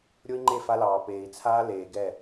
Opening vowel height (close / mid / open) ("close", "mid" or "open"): mid